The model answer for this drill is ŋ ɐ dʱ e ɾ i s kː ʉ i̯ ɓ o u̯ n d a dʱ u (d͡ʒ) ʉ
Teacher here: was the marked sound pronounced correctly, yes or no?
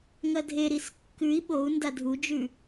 yes